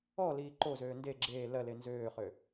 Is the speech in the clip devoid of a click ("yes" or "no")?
no